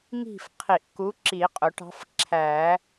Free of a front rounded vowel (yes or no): yes